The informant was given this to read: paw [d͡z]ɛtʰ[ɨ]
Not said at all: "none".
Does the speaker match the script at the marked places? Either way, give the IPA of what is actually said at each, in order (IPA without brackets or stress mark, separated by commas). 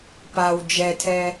d͡ʒ, ɛ